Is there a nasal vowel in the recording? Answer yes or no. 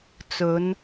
no